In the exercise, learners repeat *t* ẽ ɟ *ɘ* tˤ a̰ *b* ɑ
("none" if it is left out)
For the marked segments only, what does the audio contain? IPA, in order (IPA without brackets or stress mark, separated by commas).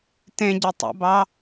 t, ɘ, b